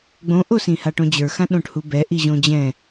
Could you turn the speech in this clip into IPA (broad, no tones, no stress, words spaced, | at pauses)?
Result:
ɡ͡bõʔosĩ haʈõd͡ʑə˞xã ɗõʈhubɛ ʔiʑõd͡ʑɛ̃